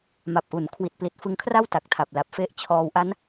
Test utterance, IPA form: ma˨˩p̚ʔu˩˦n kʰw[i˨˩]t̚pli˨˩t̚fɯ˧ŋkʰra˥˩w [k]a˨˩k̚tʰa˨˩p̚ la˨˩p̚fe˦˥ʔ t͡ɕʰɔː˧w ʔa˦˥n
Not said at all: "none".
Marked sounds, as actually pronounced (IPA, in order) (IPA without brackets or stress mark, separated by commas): i˨˩, t